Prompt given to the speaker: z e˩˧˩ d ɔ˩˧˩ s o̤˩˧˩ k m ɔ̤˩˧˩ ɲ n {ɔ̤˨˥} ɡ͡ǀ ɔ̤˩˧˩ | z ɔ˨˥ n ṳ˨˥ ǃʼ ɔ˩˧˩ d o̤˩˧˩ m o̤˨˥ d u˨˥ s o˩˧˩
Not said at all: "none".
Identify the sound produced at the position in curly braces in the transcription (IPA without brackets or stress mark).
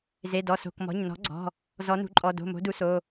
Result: ɔ̤˨˥